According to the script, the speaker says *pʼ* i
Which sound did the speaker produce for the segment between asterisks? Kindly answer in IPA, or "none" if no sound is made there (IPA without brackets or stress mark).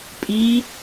pʼ